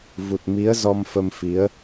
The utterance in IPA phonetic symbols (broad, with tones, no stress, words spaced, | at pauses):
vu˨˩t̚ mi˨˦ə̯ zɔ˧mfə˧mfi˨˦ə̯